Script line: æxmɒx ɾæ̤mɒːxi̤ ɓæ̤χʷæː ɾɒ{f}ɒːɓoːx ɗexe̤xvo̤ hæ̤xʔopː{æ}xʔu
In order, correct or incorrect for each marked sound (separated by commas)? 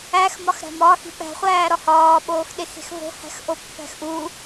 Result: incorrect, incorrect